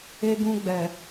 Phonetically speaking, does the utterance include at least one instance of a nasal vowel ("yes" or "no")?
yes